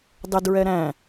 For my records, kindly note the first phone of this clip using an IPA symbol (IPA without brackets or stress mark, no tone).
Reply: dˤ